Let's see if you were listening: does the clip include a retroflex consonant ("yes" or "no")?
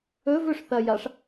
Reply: yes